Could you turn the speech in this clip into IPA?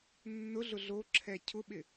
nː ʊ ɮ ʊ ɮ o ǁʰ ɛ cʰ ʊ ɓ ɪ

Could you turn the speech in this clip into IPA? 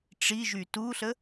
ʈ͡ʂ i ʒ y t u ɬ ə

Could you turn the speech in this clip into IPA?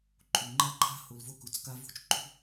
ǃʼ u˨ ŋ͡ǃ a˦ ǃʰ a̤˦ h o˨ l v o˦ k u˨ t͡s k a˦ v ṳ˦˨ t͡ʃ ǃʼ ṳ˦

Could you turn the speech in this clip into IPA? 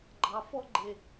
ɡ͡ǃ ɑ˨ f ɔ˦ ɡ͡ǃ e˨

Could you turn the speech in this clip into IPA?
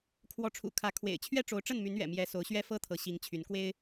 kʰ w ɔ˨˦ ʈ͡ʂʰ ṵ˨˩ kʰ ä˨˦ kʰ w ḛ˨˩ ɪ̯ t͡ɕʰ ɥ ɛ˦ ʈ͡ʂ o˨˦ ʊ̯ ʈ͡ʂ ə˥˨ n m y˨˦ n ɥ ɛ̰˨˩ m j ɛ˨˦ s o˨˦ ʊ̯ ɕ ɥ ɛ˦ f ɤ˦ t̪ʰ ɤ˨˦ ɕ i˨˦ ŋ t͡ɕʰ y˨˦ n k w e˦ ɪ̯

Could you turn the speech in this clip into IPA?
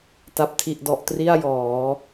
t a˨˩ p̚ tʰ i˨˩ ʔ d ɔ˨˩ ʔ t r i˥˩ a̯ j ɔː˩˦

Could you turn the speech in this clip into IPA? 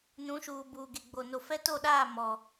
n ũ˨˦ ʃ uː˨ b uː˨ ɡ e˨ ɡ͡b o˨ n o˨ f ɛ˦ t o˦˨ ɗ aː˦˨ m ɔ˨

